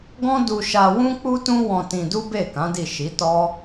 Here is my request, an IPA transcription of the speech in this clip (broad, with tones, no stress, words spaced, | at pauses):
ɡɔ̃˦du˧ʃa˧ wũ˦k͡pu˦tũ˦ wɔ̃˧tĩ˧du˦ be˦˨kã˨˦di˦˨ ʃi˨˦tɔ˦